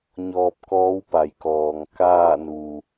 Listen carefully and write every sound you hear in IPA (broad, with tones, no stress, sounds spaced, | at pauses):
ɲ ɔː˧ p̚ k ɔː˧˥ w p a˩ j k ɔː˩ ŋ k aː˥˨ n u˩